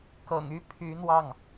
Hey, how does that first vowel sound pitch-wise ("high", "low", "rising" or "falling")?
low